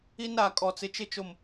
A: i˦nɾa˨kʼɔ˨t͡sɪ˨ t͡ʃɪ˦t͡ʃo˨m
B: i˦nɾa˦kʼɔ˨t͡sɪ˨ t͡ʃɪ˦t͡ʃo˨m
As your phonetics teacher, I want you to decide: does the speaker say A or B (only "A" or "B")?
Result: A